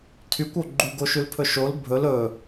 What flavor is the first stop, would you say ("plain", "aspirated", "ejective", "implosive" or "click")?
aspirated